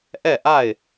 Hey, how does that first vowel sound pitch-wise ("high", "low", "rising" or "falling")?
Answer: falling